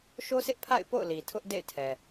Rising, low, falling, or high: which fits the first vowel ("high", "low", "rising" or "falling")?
high